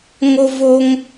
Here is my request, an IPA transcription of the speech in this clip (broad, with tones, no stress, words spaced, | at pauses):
ŋo˥voː˥ŋ